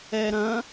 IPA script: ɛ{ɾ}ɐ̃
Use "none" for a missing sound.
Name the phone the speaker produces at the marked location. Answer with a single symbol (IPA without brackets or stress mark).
ɾ